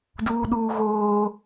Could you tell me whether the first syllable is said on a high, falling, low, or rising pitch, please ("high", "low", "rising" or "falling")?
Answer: high